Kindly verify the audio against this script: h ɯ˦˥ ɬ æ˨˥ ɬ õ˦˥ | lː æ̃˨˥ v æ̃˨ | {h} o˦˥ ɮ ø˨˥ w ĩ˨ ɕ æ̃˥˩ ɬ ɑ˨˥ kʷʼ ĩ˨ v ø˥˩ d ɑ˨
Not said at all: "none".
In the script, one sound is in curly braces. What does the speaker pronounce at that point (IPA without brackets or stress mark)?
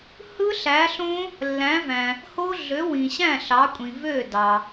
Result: h